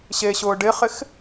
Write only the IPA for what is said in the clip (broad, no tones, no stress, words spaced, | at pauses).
ɕeɕʊː ɖɪχɪx